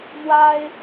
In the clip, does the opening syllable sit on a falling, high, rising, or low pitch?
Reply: high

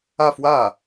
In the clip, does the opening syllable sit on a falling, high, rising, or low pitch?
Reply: falling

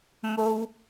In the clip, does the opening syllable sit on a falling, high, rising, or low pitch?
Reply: high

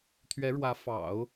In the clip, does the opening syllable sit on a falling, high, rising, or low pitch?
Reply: rising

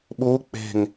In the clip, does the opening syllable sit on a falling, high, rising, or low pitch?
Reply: rising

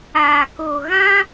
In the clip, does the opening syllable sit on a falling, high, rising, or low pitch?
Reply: low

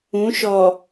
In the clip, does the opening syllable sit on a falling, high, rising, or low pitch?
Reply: rising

